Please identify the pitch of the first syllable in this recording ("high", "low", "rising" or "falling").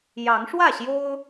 rising